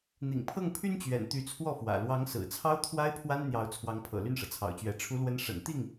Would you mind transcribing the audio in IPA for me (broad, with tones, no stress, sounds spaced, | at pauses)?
n̪ ḭ˨˩ ŋ pʰ ɤ˥˩ ŋ pʰ y˥ n t͡ɕ ɥ ɛ̰˨˩ n t̪ y˧˥ t͡sʰ w ɔ˥˩ f w ä̰˨˩ l w ɑ˧˥ ŋ s ɹ̩˨˩ t͡sʰ ɑ˥ ʊ̯ t̪ʰ w a˥ ɪ̯ pʰ w a˥ n n̪ j ɑ˧˥ ʊ̯ t͡sʰ w ɑ˧˥ ŋ pʰ ɤ̰˨˩ l y˥˩ n ʂ ɤ˩ t͡sʰ ɑ̰˨˩ ʊ̯ t͡ɕ ɥ ɛ˧˥ ʈ͡ʂʰ u˧˥ l w ə˧˥ n ʂ ə̰˨˩ n t̪ i˥˩ ŋ